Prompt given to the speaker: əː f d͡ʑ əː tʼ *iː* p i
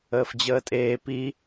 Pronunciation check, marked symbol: incorrect: eː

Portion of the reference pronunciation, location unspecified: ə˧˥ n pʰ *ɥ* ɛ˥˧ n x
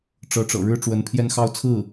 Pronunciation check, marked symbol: incorrect: j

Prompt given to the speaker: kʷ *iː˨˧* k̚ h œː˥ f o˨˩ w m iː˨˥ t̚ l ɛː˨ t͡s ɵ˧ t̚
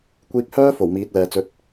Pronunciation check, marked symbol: incorrect: iː˧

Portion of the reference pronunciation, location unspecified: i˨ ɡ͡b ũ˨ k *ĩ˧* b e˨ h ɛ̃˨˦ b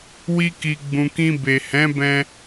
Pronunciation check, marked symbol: correct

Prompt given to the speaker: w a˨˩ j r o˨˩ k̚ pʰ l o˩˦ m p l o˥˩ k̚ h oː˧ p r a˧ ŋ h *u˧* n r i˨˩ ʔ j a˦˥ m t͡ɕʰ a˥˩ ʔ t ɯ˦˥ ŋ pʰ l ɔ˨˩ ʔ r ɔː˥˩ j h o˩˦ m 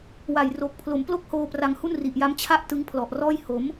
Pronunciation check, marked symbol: incorrect: u˥˩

